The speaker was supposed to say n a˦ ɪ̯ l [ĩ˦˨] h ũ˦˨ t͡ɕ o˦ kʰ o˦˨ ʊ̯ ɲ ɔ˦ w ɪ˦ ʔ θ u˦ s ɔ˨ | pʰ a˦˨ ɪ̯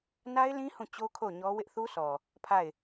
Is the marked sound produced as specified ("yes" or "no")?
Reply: no